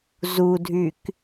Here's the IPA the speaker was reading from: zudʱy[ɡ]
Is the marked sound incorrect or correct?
incorrect: k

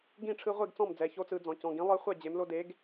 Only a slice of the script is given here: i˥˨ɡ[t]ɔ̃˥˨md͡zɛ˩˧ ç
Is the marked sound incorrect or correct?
incorrect: t͡s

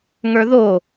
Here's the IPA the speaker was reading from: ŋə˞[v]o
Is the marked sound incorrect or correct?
incorrect: ð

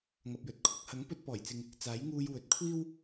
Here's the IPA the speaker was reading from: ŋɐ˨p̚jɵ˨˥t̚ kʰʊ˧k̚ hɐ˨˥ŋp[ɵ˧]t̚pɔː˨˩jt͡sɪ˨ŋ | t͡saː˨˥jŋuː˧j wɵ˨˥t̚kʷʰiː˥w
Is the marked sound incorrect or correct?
correct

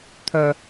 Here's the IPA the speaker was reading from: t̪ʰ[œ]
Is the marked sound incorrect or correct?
correct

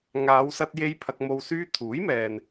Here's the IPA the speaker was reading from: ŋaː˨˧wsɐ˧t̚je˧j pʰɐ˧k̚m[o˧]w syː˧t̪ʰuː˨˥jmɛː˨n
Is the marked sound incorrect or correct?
correct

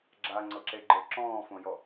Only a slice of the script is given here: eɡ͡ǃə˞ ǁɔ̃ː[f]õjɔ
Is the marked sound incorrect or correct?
correct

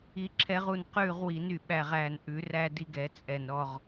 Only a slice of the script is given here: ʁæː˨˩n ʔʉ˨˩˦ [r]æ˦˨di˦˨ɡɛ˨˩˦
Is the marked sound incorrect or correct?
correct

